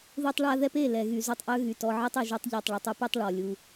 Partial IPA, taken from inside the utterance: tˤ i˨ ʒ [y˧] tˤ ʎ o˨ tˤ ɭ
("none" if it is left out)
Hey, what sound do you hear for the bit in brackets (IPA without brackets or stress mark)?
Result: y˧